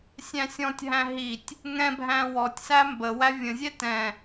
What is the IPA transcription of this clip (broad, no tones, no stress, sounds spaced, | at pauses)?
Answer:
sʲ æ̃ sʲ ɔ̃ tʲ ɦ æ̃ ɦ i tʲ | ŋ ɛ̃ bʱ æ̃ w ɔ tʲ s æ m b ə w æ vʲ ə̃ zʲ ɛ t ɛ̃